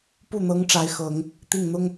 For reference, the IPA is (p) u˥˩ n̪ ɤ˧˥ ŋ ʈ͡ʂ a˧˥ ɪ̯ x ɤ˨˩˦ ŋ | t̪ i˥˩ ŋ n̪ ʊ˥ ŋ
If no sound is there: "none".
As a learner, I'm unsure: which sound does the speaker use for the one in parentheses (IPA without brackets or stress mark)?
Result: p